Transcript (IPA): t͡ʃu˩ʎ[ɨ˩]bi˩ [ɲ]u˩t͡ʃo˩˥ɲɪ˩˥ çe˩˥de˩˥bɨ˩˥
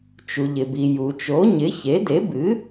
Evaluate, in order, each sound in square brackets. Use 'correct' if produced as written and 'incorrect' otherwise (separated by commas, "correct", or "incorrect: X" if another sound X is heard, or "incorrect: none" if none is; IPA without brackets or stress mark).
incorrect: ɪ˩, incorrect: j